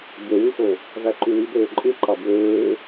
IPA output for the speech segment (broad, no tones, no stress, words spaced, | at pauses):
ɟøwyxo | væǃywibøː ǃʼɯ ǃɑbwøː